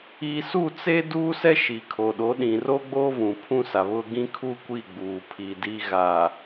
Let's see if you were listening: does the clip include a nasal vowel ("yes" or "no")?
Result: yes